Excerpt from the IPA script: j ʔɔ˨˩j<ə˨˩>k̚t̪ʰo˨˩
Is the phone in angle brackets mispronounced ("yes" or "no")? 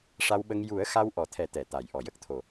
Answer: yes